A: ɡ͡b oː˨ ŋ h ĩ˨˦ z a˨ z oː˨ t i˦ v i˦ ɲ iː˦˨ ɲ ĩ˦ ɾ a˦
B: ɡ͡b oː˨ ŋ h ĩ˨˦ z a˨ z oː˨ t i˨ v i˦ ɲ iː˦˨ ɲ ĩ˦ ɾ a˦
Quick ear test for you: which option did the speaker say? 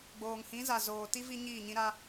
A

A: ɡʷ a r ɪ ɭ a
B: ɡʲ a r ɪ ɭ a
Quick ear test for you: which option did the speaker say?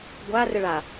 A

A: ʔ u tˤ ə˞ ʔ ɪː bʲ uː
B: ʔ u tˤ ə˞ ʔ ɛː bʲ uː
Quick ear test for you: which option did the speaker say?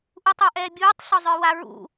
B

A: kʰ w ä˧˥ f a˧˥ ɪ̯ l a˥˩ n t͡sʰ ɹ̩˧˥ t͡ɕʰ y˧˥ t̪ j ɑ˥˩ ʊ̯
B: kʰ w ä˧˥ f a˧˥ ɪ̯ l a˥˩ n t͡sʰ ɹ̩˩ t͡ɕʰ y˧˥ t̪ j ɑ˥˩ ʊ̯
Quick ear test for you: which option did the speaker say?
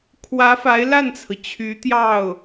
B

